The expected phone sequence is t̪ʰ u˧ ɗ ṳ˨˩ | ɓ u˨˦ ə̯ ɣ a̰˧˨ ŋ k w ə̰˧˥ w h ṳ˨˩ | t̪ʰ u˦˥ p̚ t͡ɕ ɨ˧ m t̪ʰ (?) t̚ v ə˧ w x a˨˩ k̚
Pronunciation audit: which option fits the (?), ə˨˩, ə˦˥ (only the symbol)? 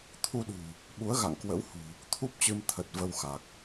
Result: ə˨˩